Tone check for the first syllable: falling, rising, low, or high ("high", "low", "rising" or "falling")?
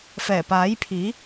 low